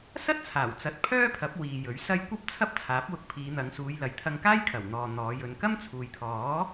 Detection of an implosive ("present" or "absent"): absent